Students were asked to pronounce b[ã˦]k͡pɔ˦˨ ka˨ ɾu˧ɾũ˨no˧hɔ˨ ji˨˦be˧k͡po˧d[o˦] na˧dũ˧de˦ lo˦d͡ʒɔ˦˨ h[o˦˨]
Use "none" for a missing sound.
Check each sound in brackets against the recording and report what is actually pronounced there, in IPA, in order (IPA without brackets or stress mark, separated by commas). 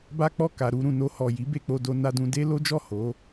a˦, o˧, o˨˦